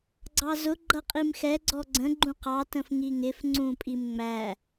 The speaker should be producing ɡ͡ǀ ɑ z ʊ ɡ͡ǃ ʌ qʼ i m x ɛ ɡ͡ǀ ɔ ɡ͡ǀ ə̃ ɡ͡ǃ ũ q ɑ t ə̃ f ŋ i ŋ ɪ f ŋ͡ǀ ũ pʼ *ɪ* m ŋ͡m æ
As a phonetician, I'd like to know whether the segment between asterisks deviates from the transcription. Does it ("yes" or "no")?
yes